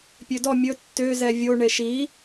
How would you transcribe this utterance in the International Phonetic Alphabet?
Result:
pʲ ø d ɔ mʲ ɵ tː ø z ɛ vʲ o ɳ e ʃ i

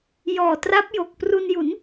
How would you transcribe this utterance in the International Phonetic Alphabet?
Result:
j ɔː˨˩ t r a˦˥ p̚ j o˨˩ k̚ p r u˧ n j u˩˦ n

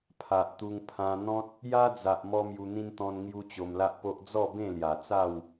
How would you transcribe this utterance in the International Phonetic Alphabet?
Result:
pʰ a˨ ʔ t̪ u˧ ŋ pʰ ã˧ n̪ ɔ̃˦ t̚ | j a˦ d͡z a˨ ʔ m ɔ˦ m j u˧ n̪ ĩ˦ n t̪ ɔ̃˧ n ŋ j u˦ t͡ɕ o˧ m l a˦ ʔ p o˦ ʔ d͡z ɔ˥˧ b ẽ˥˧ l j a˨˩ t͡s a˥˧ w

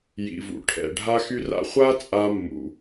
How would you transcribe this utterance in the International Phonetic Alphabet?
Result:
j ḭ˩ v ṵ˩ ʈʰ ɛ̰˩ ɖʱ a˥ x y˥ r a̰˥ χʷ a˥ t͡sʼ a˧ mː ṵ˩

